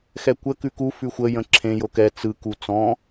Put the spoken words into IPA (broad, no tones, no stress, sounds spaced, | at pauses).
x ɛ kʷ ə k ʉ k u f ʉ xʷ ə j ə̃ ǁʰ ẽ j o k ɛ t͡s ɯ k u t͡s ɔ̃